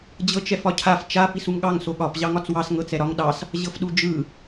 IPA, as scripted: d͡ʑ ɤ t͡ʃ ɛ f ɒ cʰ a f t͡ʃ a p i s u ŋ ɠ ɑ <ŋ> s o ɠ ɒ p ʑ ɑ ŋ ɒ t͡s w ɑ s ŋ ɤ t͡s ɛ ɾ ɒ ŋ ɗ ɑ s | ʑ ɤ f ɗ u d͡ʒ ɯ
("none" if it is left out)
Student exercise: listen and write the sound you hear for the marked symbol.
ŋ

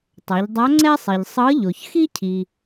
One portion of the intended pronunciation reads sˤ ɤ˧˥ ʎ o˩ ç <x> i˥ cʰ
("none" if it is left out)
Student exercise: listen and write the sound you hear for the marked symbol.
x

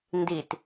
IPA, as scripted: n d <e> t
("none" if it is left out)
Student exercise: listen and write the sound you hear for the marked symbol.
i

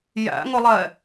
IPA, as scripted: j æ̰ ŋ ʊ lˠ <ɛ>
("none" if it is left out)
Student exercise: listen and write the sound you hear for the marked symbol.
ɛ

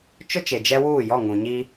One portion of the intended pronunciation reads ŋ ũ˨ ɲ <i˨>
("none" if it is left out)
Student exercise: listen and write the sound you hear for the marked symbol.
i˦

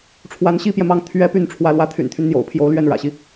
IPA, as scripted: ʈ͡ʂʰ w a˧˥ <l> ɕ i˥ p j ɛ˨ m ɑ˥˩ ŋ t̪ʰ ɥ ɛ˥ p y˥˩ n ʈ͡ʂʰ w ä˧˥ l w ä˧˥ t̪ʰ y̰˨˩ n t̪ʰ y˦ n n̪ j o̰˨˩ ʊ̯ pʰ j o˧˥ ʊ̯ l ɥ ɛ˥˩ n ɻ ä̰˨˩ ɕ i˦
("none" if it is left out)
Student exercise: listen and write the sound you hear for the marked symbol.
n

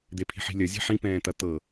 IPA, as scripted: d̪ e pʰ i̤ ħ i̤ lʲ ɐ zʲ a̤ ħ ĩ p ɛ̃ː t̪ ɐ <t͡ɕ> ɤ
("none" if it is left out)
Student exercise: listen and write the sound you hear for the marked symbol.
t̪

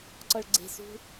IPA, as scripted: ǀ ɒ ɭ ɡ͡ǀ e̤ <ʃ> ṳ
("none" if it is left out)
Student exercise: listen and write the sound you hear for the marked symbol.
s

